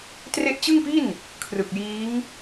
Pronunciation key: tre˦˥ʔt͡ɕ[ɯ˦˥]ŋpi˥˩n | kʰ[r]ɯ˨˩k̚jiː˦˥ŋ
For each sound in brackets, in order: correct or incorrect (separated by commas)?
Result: incorrect, correct